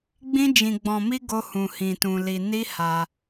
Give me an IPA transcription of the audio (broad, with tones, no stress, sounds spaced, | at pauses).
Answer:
ɡ͡b ĩ˦ d͡ʒ ĩ˧ ɡ͡b ɔ̃˧ m i˦ ɡ o˦ h ũ˧ h ĩ˧ t ũ˧ l i˧ n i˦ h a˧